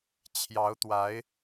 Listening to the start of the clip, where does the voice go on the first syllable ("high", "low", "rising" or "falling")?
rising